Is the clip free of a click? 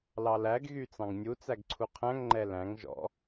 no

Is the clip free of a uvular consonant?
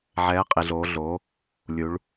no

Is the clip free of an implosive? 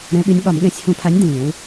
no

